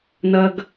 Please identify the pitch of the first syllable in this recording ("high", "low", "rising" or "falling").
high